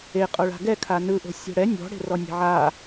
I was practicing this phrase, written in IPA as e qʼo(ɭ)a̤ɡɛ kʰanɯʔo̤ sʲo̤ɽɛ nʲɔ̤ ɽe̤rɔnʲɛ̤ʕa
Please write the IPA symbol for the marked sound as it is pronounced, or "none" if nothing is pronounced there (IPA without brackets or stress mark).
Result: ɭ